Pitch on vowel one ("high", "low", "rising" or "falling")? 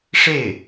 falling